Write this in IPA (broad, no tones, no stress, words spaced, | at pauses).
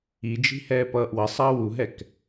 id͡ʒi̤ hɛːpʌːʔwʌsˤʌː wuɦɛk